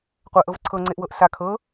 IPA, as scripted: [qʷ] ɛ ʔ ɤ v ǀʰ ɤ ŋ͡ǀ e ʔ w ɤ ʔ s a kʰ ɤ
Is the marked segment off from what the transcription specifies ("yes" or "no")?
no